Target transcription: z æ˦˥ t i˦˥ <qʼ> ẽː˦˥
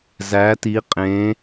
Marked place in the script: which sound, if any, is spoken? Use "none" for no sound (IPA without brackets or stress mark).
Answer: qʼ